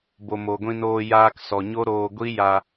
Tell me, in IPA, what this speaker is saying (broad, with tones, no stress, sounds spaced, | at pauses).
b o˨ m o˨ ɡʷ ĩ˧ n oː˧ j aː˧ k s ɔ˨ ɲ o˦ ɾ oː˧ ɡʷ i˦ j a˧